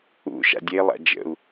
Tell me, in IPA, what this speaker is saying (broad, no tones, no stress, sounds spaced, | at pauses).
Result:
ṵ ʃ a̰ dʲ e lˠ a̰ d͡ʒ ə̰ u̯